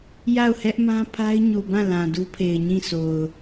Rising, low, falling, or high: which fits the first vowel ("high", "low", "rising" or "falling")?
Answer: falling